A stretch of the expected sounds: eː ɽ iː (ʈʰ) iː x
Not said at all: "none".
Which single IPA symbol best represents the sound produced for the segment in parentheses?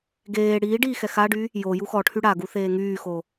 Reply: ɖ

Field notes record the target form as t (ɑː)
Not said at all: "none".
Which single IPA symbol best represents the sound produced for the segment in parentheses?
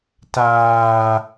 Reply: aː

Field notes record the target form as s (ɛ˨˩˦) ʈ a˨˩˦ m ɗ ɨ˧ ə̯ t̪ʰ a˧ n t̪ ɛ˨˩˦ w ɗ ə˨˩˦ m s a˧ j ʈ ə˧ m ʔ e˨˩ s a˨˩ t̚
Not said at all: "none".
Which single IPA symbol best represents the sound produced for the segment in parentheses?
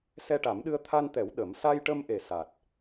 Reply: ɛ˧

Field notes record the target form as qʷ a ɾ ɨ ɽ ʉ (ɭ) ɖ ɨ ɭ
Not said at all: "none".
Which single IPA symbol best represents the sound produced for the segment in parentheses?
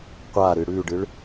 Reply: none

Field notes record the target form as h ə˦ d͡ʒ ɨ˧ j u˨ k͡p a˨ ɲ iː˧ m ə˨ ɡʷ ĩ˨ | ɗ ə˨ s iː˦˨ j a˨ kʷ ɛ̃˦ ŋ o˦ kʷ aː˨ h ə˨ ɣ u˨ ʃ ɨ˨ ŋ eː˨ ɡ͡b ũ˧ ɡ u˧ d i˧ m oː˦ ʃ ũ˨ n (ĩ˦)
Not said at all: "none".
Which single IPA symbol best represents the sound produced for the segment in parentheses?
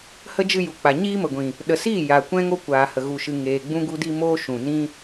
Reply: ĩ˦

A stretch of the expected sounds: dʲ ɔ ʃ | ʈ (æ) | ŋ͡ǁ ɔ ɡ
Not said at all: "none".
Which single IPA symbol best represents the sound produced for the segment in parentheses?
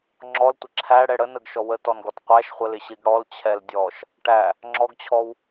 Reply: æ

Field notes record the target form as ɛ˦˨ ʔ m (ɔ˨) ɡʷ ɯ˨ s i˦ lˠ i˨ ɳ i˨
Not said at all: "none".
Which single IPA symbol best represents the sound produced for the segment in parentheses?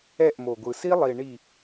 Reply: o˨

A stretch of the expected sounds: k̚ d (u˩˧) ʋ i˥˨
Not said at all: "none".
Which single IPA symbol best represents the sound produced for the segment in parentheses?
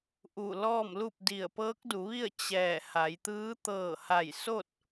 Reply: u˩˧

